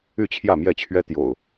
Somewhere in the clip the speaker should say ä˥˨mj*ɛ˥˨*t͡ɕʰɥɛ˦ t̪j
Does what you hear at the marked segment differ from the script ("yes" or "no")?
no